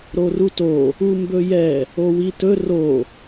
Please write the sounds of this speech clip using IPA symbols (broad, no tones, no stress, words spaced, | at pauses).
ɾoruto | umbɵjɛ | owitɵ ro